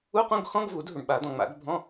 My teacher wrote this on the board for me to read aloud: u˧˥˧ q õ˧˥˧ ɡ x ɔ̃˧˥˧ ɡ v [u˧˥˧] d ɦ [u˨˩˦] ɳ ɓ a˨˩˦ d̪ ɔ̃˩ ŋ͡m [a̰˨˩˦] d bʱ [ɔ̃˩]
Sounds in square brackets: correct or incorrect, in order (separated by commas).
incorrect, incorrect, correct, incorrect